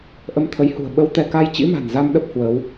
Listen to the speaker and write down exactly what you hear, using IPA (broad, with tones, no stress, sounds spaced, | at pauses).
ʔ ə˧ m t̪ʰ ə˨˦ j h ṳ˨˩ ə̯ ɓ ə˧ w t̪ ɛ˧ k a˧ j t͡ɕ ḭ˧˥ m a̤˨˩ n z a˧ m ɗ ə˦˥ p̚ h w əː˨˦ w